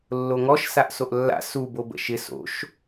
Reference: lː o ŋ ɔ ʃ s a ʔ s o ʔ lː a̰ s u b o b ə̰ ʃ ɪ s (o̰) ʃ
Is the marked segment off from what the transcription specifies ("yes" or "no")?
no